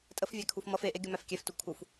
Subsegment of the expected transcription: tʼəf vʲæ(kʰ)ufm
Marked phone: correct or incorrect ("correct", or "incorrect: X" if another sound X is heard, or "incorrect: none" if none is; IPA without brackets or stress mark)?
correct